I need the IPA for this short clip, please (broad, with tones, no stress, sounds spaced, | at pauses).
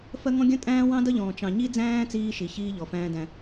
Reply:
f ɜ˦ ŋ ɔ̃˦ ɡʲ ə̃˦ tʼ æ̃ː˦ w ɑ̃˦ d ʌ˦ ʎ ɔ̃ː˨ t͡ʃ ɑ̃˨ ɲ i˦ d͡z æ̃ː˦ t͡s iː˦ ʃ i˨ ç iː˦ ʎ ɔ˨ f æ̃ː˦ d æ̃˦